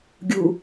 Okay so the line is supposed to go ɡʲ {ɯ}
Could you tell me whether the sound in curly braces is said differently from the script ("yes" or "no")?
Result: yes